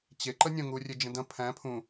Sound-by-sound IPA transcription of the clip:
t͡ɕeǃə nʲə̃ŋurʲe d͡ʒə̃dɐ̃ pʰæ̃ pʰũ

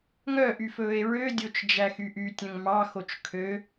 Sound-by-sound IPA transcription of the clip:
ŋœʔyfɵːe̯ ɹødʲot͡ʃd͡ʒæxy ʔytʲœ̃ŋ mɑxot͡ʃ kʰø

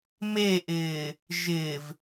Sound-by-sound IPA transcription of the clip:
meʔɪː | ʒɪːv

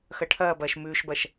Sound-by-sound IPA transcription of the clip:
xɐʈʰɐːbɐːʃ mʉːʃbɐʃ

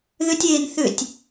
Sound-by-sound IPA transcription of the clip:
ðʏtʲeːn θʏtʲ

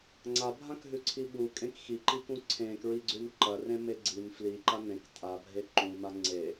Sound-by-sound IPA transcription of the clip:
ŋ͡ǀabʱãkɦʉǀʰi ɓukʼẽk xiǃikũ ǀʰẽkɹiɡ͡ǀʉn ǃɐrẽme ɡ͡ǀin fliǃa nẽk tʼabʱe ǃũma ŋ͡ǀe

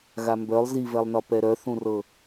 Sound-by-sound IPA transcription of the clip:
ɣambœlˠ zivɛlˠnɒ pɛɾœ θũrɤ

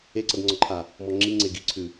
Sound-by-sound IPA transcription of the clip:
eǀʌdŋ͡ǀɔǃʰa | mɔŋ͡ǁiŋ͡ǀe ɡiǀʰʉ

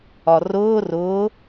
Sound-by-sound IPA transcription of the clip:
ɒrʊː rʊː

